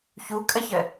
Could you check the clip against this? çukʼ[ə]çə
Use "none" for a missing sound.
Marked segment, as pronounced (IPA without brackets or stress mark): ə